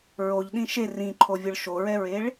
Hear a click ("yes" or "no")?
yes